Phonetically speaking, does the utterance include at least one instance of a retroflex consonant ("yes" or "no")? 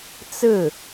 no